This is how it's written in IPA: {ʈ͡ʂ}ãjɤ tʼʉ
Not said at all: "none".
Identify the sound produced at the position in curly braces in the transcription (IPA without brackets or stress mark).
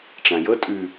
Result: ʈ͡ʂ